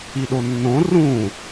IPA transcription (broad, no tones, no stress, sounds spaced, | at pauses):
i ɗ o nː õ r ũ